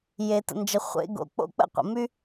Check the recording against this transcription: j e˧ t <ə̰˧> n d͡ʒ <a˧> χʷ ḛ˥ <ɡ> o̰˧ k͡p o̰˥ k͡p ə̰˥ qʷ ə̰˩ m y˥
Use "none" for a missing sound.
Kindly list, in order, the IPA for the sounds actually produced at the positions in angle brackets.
ə̰˧, ə˧, ɡ

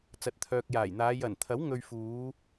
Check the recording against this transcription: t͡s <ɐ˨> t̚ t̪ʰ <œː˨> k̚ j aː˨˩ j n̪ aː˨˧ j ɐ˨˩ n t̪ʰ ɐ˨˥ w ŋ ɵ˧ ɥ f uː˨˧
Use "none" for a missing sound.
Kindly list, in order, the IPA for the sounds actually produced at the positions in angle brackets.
ɐ˨, œː˨

